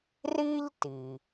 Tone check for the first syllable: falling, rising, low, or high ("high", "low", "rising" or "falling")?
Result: high